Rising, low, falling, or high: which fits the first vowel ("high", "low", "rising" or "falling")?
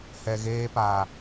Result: low